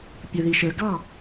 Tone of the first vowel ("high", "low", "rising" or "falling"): low